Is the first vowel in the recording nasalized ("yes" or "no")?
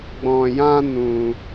yes